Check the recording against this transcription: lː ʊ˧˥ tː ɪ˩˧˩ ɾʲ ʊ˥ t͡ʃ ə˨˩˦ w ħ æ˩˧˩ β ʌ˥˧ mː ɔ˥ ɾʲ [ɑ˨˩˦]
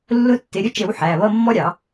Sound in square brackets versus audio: correct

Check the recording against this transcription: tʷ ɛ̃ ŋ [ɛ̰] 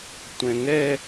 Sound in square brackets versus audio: incorrect: ɛ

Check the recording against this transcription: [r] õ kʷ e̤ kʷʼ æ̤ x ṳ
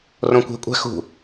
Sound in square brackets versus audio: correct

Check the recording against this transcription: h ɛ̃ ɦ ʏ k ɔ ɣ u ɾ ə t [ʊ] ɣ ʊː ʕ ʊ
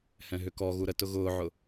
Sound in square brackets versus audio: correct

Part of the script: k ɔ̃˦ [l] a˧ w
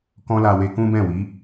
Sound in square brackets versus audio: correct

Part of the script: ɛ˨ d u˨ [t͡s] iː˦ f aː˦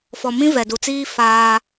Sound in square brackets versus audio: correct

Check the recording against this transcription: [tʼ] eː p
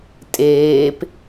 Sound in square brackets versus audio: correct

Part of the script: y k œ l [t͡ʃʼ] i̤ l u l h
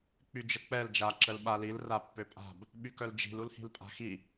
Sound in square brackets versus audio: incorrect: d͡ʒ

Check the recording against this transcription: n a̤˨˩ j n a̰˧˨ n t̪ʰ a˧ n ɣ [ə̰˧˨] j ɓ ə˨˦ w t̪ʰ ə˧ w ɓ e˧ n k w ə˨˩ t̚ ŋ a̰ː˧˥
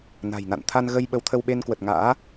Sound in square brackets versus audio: incorrect: ə˧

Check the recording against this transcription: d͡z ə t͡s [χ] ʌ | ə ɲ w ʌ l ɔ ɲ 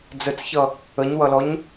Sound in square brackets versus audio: incorrect: ç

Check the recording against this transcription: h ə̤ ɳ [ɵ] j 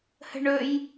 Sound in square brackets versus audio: correct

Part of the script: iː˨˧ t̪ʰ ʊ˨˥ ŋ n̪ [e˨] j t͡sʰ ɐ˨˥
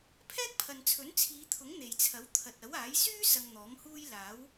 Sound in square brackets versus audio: correct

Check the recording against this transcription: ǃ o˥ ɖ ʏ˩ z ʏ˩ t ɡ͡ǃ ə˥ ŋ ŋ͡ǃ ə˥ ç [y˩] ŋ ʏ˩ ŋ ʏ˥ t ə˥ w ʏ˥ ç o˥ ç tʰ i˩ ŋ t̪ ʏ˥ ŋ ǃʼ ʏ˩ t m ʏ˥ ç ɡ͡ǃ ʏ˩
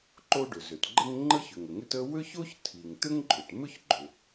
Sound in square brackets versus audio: incorrect: ʏ˩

